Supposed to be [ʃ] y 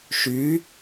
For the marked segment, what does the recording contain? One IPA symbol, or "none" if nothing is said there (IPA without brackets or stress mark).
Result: ʃ